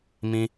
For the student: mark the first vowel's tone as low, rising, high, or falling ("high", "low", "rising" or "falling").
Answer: high